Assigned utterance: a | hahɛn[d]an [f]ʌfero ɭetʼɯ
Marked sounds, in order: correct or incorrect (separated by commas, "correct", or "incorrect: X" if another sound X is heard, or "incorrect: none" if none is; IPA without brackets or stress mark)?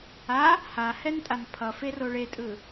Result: incorrect: tʼ, incorrect: pʰ